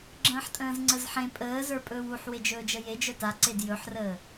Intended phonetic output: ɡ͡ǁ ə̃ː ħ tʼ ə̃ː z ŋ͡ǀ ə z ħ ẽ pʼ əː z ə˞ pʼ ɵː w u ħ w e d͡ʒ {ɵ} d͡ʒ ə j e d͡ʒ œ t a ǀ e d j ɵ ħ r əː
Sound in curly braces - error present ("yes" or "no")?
yes